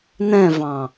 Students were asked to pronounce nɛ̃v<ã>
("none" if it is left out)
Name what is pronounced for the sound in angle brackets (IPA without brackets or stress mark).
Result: ɑ̃